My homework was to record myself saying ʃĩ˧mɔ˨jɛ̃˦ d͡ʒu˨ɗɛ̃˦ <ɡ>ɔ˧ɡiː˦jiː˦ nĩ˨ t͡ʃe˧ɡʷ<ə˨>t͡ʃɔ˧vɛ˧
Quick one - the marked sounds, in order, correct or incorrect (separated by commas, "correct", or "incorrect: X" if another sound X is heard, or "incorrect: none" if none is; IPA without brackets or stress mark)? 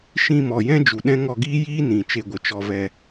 incorrect: ŋ, correct